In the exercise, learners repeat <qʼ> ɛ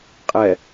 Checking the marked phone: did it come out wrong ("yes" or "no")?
no